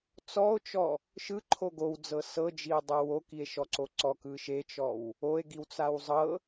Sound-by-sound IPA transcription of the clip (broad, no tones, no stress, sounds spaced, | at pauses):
t͡s ɔ o̯ t͡ʃ ɔ | ʃ ɯ ǃʰ o ɡ o w d͡z ɤ s ɤ d͡ʒ i o̯ dˤ ɤ w o k i e̯ ʃ ɔ ǀ o ǀ ɔ k ɯ ʃ e t͡ʃ ɔ w | o e̯ ɡ i w t͡s a w zˤ ɤ